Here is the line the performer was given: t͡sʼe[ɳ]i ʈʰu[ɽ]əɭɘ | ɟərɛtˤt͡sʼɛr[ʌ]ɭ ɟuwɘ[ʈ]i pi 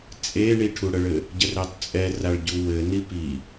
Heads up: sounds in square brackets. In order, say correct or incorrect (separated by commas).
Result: correct, correct, incorrect, incorrect